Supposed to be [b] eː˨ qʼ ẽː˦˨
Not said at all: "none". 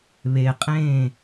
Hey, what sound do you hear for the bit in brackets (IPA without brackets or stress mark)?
β